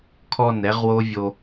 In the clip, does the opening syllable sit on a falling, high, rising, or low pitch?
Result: falling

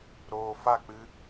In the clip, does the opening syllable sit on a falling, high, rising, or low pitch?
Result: low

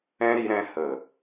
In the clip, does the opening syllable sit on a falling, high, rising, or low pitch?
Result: high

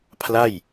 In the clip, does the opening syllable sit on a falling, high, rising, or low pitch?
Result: falling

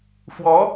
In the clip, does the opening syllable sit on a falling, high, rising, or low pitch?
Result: rising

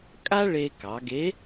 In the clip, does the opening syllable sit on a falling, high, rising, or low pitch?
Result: high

